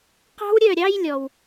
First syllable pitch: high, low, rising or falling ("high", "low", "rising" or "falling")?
high